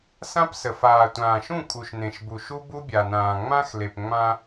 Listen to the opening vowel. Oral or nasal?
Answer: nasal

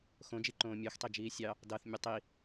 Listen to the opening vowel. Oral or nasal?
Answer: nasal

